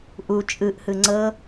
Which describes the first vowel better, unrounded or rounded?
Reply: rounded